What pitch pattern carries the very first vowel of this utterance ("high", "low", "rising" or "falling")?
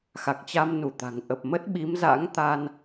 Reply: low